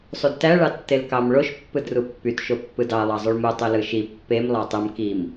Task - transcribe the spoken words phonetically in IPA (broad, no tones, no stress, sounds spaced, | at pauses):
sˤ u d t æ ɭ ɑ tː e l k ɑ m ɭ o ʃ pː ɯ d r u pː y t ʃ o pː ɯ d ɑ lˠ ɑ zˤ y ɭ m u tˤ y l ɯ ʃ i pː e m lˠ ɑ tˤ ɯ m k i m